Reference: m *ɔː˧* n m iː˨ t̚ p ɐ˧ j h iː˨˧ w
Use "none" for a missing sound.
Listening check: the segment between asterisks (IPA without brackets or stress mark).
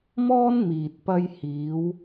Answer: ɔː˥